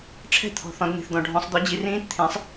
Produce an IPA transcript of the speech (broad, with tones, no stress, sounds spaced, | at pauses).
ʈ͡ʂʰ ɛ̤˧˩˧ t̪ʰ ɔ̤˩ θ ɔ̃˩˧ d n̪ i̤˩ θ d̪ ɔ̃˩ ɖʱ ɔ̃˩˧ sˤ d̪ ɔ˩˥ d͡ʑ i˩˧ r ĩː˧˥ t t̪ʰ ẽ˩˥ sˤ